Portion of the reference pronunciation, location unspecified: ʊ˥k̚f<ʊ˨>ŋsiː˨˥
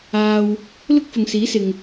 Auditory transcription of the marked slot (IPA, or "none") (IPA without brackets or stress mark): ʊ˨